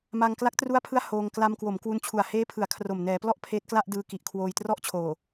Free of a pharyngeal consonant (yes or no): yes